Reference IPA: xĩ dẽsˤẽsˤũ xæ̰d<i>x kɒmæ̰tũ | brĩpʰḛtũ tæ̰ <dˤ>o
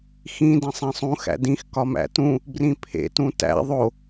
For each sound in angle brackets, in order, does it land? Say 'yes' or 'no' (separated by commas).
no, no